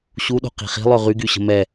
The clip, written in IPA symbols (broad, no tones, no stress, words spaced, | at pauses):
ɕuɗo̤ qi̤χi̤lˠø ʁyɡy ɕə̤mɛ